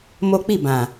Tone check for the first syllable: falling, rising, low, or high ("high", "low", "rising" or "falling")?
high